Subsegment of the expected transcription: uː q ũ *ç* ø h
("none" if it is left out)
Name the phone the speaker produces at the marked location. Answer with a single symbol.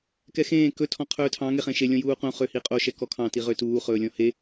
χ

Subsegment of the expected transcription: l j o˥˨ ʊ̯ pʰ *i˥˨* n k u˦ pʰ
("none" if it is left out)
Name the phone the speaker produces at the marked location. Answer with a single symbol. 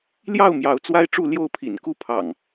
ḭ˨˩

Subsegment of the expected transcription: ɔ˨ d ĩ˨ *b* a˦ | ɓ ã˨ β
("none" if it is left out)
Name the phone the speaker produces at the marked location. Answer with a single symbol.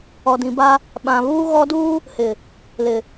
b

